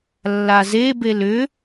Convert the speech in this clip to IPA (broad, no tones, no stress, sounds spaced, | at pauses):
lː a z e b e l ʏ